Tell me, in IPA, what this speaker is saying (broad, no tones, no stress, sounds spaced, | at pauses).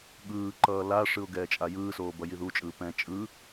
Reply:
ɠ ɯː ǃ ʌː l a ʂ ɯ ʊ̯ ɡ ɛː t͡ʃʼ a j ɯː s oː b ʌ j i ð u t͡ʃʼ ɯː p ɛ̃ t͡ʃʼ ɯ